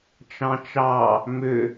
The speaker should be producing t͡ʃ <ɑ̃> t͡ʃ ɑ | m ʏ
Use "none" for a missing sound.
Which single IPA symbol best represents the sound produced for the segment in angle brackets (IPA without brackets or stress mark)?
ɑ̃